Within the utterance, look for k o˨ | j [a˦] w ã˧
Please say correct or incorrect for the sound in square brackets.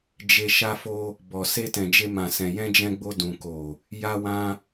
incorrect